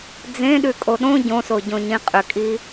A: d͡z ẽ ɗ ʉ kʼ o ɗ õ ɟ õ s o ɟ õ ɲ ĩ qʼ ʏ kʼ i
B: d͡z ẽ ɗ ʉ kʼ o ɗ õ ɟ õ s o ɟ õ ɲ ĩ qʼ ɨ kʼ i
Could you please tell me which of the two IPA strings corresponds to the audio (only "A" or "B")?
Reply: A